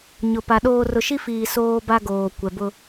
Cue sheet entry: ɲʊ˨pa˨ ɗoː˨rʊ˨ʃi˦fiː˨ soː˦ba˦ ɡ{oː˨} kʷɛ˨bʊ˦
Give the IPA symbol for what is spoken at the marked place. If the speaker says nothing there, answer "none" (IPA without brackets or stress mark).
oː˨